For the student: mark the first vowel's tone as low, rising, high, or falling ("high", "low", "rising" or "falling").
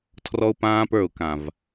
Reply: high